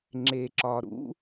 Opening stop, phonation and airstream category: click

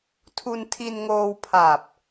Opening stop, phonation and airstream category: aspirated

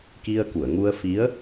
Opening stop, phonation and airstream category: plain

